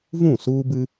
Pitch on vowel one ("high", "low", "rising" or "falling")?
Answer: falling